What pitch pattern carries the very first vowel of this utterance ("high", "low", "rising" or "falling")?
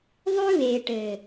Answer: high